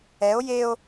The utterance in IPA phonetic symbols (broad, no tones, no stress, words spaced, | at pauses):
ɛo̯ jeo̯